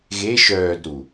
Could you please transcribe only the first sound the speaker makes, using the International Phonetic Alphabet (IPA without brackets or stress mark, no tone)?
ɣ